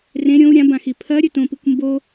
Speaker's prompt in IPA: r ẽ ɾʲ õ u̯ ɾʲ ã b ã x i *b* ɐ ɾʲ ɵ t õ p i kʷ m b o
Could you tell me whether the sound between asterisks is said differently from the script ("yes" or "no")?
yes